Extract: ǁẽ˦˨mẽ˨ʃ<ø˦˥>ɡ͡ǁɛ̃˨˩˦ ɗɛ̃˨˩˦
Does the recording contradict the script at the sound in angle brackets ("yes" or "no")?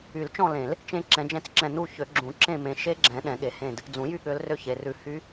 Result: yes